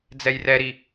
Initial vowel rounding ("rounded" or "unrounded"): unrounded